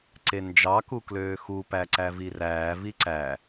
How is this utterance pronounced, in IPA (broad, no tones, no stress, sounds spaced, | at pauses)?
ǀ e n d͡ʒ ɑ k u k l øː x u p æ ǀ æ v i r æː v i ǀ æ